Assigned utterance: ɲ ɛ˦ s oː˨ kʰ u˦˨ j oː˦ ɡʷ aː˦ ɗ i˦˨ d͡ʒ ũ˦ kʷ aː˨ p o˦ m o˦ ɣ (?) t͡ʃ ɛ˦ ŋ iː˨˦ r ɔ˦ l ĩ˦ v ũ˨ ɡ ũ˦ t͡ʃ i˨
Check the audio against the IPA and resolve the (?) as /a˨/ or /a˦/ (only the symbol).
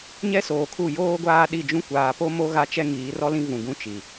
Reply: a˦